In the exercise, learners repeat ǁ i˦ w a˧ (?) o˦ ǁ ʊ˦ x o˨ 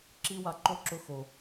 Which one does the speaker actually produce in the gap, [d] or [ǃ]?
ǃ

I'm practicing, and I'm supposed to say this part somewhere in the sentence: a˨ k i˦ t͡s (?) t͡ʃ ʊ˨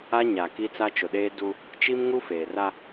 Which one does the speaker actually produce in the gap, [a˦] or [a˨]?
a˦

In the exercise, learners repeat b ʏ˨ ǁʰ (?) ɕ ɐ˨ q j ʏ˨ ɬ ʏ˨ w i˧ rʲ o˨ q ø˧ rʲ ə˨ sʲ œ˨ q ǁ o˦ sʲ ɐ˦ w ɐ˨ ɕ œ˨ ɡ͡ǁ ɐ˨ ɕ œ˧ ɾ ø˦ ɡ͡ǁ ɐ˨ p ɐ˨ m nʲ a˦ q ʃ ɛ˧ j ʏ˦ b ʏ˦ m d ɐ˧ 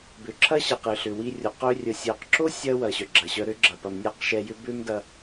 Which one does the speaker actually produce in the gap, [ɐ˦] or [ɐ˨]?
ɐ˦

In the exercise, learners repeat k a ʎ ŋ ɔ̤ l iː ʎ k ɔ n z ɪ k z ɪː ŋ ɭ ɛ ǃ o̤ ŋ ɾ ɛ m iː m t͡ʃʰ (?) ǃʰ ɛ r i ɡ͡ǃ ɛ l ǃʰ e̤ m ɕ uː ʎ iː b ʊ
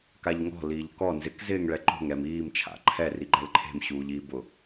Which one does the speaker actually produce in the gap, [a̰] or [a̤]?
a̰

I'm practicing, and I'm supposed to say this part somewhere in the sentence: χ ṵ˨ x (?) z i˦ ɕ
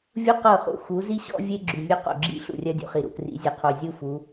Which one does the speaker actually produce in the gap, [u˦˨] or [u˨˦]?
u˨˦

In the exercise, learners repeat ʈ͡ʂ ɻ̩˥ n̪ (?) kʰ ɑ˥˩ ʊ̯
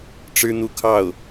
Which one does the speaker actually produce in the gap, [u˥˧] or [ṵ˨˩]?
u˥˧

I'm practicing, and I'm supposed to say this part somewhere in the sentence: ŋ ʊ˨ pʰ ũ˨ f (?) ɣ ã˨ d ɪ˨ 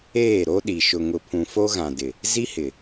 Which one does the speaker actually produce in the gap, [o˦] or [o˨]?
o˦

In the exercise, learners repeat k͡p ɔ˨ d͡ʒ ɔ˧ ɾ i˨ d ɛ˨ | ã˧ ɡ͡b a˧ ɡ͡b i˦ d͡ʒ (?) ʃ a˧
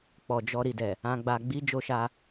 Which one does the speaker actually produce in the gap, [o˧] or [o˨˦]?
o˧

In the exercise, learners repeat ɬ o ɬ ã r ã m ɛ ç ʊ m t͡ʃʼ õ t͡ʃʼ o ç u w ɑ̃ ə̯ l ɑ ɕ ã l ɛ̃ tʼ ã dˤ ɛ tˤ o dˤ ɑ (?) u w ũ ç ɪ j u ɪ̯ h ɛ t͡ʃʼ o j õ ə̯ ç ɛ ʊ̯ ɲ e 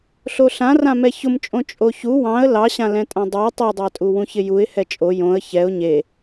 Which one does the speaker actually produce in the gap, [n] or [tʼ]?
tʼ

